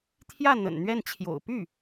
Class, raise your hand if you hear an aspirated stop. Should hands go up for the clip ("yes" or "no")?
yes